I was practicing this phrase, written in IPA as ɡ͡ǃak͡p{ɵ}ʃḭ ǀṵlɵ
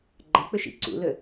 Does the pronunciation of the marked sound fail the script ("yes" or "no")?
no